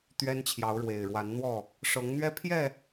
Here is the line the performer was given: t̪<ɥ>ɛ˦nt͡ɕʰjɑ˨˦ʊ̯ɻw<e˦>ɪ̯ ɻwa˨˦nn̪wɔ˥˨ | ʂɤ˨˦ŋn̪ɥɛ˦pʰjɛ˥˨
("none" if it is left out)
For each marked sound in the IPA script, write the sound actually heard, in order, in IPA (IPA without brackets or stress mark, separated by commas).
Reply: ɥ, e˨˩